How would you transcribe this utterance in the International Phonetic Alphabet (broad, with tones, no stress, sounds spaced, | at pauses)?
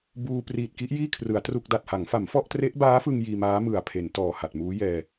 b uː˧ p r iː˨˩ t̚ k i˦˥ ʔ j iː˥˩ kʰ r ɯ˩˦ a̯ t r u˥˩ k̚ d a˨˩ t̚ h a˩˦ ŋ f a˩˦ m f ɔ˥˩ ʔ t r e˦˥ ʔ b aː˦˥ f ɯ˧ ŋ j iː˧ m aː˦˥ m ɯ˨˩ a̯ pʰ e˩˦ n t ɔː˨˩ h a˨˩ t̚ m uː˦˥ j ɛː˧